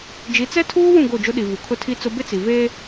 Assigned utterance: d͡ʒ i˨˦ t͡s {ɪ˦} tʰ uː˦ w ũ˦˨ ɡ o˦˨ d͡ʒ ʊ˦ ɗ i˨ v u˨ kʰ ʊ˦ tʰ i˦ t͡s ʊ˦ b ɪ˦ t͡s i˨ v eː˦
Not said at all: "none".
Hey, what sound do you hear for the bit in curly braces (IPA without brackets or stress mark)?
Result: ɛ˦